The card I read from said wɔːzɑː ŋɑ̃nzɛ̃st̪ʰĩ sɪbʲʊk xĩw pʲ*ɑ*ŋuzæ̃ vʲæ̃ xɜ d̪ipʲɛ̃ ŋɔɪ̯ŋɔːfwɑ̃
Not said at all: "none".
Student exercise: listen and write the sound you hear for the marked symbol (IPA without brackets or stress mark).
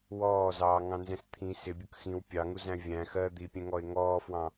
ɑ